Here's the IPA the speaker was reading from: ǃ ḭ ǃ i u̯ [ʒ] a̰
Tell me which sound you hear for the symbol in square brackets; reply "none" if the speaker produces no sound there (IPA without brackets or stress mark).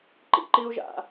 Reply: ʒ